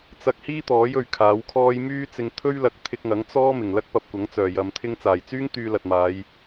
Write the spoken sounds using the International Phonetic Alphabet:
t͡sɐ˧k̚hiː˥t̪ɔː˨˥j ɵ˧ɥkʰaː˨˥wkʰɔː˥j myː˥t͡sɪ˧ŋ t̪ʰɵ˥ɥlɐ˨˥k̚ t̪ʰɪ˧k̚ŋɐ˨˥ŋ t͡sɔː˥ mɪ˨˩ŋlɐ˥k̚ pɐ˧p̚kʷɐ˨˥ŋ t͡sœː˨˩jɐ˨m t̪ʰɪ˧ŋt͡saː˨˩jt͡syː˥ŋ t̪yː˧lɐ˨t̚maː˨˧j

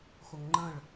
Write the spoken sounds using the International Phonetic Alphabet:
χʷəŋŋ͡ǃə̃ɭ

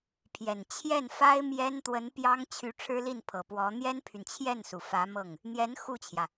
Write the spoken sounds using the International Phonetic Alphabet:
pʰjɛ˨˩n t͡ɕʰjɛ˥˩nfa˥ɪ̯ mjɛ˥n t̪wə˧˥n pjɑ˥ŋt͡ɕʰy˧˥ ʈ͡ʂʰɻ̩˥li˥˩npʰɤ˨˩pwɔ˧˥ n̪jɛ˥npʰy˨n t͡ɕʰjɛ˥˩nsu˩ fä˧˥mɤ˥˩ŋ | n̪jɛ˧˥n xu˥˩t͡ɕʰjä˩

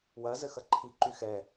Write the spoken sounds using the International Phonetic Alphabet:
wɐ zɘxɐǃʰi ǃyxɛ

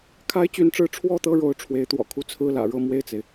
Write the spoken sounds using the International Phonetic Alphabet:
kʰa˥ɪ̯t͡ɕy˧˥nʈ͡ʂɻ̩˧˥ ʈ͡ʂʰwɔ˥˧ t̪ɤ˥˩ɻo˧˥ʊ̯ ʈ͡ʂʰwe˧˥ɪ̯t̪wɔ̰˨˩ kʰu˥˧t͡sʰɹ̩˥˩ lä̰˨˩ɻɤ˥˧ mwe˥˩ɪ̯t͡se˩ɪ̯

